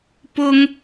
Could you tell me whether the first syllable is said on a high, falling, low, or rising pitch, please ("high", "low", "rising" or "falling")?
high